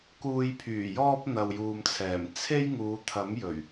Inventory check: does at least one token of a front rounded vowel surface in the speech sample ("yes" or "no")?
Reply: yes